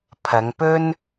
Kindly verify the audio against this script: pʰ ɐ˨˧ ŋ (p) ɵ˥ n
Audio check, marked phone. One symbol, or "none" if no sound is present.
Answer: p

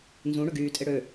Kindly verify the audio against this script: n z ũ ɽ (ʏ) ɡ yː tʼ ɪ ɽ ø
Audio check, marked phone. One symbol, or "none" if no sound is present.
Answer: ʏ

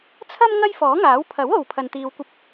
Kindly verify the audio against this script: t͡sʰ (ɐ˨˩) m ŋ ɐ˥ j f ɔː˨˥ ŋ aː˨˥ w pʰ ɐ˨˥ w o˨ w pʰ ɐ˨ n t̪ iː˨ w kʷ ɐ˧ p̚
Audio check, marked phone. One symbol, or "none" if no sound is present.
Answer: ɐ˥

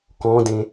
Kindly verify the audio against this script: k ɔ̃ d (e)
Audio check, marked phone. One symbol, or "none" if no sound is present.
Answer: ẽ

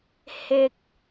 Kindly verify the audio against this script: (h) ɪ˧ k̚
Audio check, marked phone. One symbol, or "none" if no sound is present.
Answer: h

